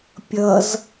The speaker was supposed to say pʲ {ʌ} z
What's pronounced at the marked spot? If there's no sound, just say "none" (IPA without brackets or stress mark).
ʌ